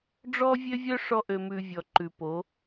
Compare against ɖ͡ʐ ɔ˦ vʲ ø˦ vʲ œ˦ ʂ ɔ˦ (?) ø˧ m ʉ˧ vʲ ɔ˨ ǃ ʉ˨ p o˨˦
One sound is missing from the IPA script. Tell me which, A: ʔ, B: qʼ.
A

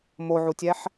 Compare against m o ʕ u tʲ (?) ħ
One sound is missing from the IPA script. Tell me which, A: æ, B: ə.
A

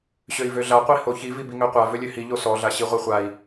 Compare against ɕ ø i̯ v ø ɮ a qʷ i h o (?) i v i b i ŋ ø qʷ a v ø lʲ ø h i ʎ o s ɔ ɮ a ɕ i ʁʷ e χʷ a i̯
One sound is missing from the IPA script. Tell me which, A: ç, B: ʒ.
A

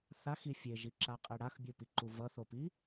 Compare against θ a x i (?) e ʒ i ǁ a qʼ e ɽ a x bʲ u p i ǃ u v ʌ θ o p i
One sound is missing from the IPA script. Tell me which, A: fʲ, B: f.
A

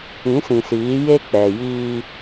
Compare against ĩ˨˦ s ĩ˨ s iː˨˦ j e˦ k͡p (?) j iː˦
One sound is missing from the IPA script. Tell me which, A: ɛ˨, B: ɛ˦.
A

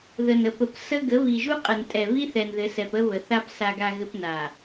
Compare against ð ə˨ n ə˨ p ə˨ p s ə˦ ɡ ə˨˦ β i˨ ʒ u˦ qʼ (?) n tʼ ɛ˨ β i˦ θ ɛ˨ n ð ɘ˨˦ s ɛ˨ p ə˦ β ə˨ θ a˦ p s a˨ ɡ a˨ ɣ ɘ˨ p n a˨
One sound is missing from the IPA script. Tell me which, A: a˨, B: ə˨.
B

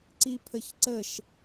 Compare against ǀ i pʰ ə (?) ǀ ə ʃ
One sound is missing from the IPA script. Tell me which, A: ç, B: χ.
A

